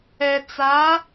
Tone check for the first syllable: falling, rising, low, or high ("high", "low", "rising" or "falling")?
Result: low